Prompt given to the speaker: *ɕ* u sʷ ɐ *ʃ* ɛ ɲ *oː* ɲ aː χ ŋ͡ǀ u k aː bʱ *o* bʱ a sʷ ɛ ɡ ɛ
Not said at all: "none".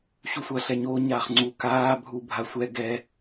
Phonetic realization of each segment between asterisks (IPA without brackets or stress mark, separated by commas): ɕ, ɬ, oː, u